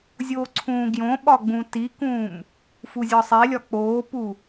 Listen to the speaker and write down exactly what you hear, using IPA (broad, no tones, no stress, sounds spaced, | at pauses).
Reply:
zʲ o ǀʰ ũː ɡ j õ ɓ ɒ ɡ͡b ũ t i k ũː m | f u zʲ ɒ sˤ e lʲ ɒ k͡p oː p u